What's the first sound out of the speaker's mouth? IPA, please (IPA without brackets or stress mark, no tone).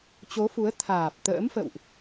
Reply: t͡ɕ